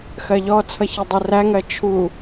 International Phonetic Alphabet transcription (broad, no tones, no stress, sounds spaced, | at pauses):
x ɜ ʎ ɔ t͡sʰ ʌ ç ʌ dˤ ɛ r æ ŋ ɜ t͡ʃʰ u